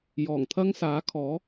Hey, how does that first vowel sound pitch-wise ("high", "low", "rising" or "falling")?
low